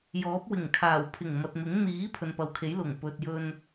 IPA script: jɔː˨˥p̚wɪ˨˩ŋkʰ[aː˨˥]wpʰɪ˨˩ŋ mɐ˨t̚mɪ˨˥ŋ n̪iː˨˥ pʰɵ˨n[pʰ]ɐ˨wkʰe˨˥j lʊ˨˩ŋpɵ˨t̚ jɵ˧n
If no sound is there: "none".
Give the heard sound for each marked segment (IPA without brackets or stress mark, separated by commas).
aː˨˩, p